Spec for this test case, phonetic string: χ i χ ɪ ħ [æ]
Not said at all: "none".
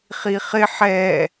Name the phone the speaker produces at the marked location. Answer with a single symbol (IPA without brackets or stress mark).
ɛ